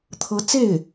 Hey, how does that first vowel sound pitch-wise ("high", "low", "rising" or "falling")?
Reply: rising